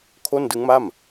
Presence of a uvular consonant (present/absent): absent